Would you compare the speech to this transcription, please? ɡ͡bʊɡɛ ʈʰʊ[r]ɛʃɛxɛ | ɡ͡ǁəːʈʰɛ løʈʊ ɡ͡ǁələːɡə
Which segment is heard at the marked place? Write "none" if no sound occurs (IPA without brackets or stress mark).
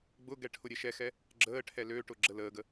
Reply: ɾʲ